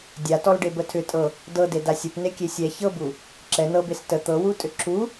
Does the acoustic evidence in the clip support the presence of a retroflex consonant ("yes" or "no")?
yes